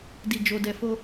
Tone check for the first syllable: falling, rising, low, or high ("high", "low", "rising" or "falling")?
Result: low